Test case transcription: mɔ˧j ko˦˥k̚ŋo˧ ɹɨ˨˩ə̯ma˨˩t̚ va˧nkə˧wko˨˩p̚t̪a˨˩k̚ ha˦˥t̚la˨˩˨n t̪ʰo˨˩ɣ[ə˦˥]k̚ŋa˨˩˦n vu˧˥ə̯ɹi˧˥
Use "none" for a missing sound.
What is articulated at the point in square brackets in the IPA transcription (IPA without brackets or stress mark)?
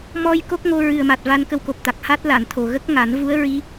ə˦˥